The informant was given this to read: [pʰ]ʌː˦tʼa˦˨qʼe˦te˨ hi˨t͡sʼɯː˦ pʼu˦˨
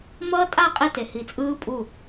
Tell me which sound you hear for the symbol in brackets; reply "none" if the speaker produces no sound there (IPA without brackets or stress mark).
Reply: m